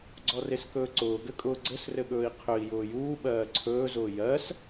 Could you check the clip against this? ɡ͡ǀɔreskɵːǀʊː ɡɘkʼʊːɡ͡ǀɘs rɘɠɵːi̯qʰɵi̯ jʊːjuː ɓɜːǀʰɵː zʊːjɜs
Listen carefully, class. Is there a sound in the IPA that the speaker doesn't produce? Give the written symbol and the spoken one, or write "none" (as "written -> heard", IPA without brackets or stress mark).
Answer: none